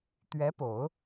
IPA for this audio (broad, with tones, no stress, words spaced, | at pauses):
t̪ɥɛ˧˥po˨˩˦ʊ̯